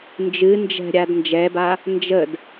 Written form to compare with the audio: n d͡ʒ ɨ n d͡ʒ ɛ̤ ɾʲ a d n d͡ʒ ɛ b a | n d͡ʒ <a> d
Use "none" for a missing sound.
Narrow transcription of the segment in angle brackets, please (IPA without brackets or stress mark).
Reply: ə